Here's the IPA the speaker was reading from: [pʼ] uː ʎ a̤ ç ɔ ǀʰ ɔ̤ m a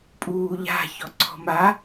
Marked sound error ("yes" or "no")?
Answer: no